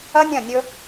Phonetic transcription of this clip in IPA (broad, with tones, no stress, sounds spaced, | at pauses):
ɐ˦ nʲ ɐ̃˦˨ nʲ ɵ˦